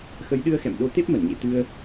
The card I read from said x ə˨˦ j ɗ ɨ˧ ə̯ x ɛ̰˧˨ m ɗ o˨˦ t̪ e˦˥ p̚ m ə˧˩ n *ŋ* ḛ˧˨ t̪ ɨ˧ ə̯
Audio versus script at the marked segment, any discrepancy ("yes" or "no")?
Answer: yes